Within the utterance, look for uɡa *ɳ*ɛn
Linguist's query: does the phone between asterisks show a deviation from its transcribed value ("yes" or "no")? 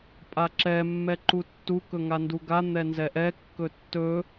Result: yes